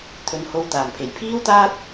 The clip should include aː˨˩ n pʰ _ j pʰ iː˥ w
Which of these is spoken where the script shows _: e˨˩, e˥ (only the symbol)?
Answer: e˨˩